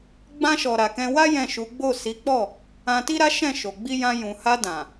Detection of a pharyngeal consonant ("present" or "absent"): absent